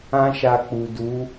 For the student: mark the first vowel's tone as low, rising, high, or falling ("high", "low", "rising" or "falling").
high